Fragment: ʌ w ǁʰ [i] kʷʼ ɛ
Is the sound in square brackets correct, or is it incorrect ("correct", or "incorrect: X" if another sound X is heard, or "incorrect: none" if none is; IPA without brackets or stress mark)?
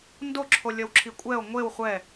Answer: correct